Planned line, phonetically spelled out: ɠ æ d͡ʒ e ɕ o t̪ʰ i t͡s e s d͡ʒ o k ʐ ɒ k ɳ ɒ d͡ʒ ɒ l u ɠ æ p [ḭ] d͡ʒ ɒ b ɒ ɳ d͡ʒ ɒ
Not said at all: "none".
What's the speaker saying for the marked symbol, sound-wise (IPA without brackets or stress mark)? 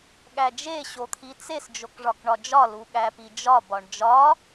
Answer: i